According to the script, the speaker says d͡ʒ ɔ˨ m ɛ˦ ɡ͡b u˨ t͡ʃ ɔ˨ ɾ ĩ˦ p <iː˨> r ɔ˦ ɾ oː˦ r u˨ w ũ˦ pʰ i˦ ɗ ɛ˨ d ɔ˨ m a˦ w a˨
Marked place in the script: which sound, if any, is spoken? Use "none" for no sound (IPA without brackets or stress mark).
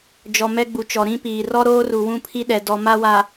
iː˨